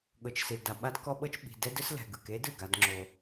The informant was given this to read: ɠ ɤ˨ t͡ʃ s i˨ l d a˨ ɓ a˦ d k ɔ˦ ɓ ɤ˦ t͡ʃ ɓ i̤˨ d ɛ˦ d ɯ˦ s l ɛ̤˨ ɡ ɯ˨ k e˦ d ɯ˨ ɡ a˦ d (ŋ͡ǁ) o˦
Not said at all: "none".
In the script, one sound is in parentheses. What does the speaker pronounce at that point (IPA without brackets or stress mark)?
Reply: ŋ͡ǁ